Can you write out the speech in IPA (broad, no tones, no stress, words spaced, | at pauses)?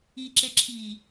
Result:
iǁeǁʰiː